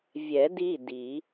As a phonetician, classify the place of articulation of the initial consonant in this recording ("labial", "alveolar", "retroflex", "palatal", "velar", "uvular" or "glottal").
labial